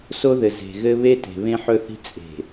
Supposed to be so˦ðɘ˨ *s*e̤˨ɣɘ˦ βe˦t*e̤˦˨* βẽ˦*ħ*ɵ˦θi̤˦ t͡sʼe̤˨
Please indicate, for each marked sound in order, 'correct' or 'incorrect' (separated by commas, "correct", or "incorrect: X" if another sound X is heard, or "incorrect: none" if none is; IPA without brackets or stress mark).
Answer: incorrect: z, incorrect: e̤˨, correct